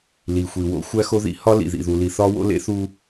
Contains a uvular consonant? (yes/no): no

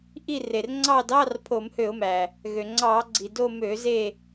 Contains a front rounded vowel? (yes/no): yes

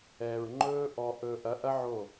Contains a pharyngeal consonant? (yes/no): yes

